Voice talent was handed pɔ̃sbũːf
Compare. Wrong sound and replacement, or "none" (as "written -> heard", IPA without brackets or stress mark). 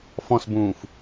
p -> f